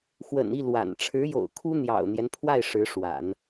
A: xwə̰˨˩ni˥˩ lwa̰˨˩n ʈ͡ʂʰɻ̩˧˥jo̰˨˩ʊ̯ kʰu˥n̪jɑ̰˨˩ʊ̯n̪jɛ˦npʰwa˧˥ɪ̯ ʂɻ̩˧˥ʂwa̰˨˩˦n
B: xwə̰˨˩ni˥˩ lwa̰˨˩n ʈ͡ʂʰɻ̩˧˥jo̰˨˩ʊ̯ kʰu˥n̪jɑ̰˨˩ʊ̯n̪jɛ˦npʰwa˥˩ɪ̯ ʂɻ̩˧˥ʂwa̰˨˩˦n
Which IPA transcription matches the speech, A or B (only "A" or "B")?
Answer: B